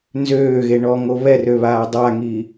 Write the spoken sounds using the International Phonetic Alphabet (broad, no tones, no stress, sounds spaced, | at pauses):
n z øː ɣ e ɳ ɔ ŋ o β ɛ r ø β aː dˤ a ŋ i